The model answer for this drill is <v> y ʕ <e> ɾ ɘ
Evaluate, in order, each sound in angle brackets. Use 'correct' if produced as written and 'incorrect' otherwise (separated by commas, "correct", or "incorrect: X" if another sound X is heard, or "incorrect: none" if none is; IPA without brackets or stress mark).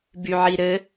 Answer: incorrect: b, incorrect: i